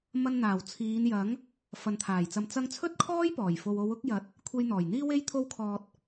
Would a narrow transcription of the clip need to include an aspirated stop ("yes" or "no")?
yes